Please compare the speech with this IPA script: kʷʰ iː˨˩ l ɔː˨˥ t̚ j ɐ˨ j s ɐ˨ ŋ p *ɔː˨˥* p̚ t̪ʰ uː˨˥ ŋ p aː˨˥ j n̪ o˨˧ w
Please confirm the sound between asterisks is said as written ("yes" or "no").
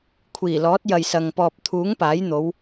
no